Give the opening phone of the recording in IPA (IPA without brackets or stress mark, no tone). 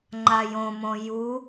ŋ͡ǃ